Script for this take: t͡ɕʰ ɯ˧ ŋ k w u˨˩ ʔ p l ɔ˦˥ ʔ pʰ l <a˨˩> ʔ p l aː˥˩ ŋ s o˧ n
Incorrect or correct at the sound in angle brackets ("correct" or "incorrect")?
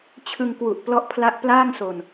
incorrect